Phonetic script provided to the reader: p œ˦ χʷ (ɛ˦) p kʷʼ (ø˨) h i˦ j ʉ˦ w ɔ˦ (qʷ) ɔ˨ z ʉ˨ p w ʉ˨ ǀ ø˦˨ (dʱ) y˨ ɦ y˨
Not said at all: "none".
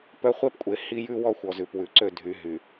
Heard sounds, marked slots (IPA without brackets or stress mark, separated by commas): ɛ˦, e˨, xʷ, dʱ